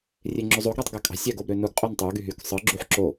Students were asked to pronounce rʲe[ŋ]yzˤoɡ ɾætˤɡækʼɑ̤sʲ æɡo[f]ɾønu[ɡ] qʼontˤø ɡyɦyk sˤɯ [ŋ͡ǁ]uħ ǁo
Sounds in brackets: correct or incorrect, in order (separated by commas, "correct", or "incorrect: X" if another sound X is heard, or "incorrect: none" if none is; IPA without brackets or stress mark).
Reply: incorrect: ŋ͡ǁ, incorrect: b, correct, incorrect: ɡ͡ǁ